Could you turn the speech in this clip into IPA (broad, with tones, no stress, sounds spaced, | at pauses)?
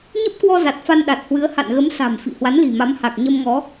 ɲ ə˦˥ p̚ k w ɔ˧ z a˨˩ t̚ f a˧ n ɗ a˨˩ t̚ h w ɨ˨˦ ə̯ h a̰˧˨ n ɣ ə˨˦ m s a̤˨˩ m f ḭ˧˨ h w a˨˦ n l i̤˨˩ m a˨˦ m h a˨˩ k̚ ɲ ə˧ m ŋ ɔ˨˦